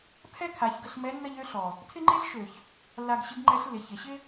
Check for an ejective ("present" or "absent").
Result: absent